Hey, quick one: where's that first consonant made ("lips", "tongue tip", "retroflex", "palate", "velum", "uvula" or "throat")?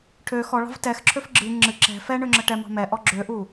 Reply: retroflex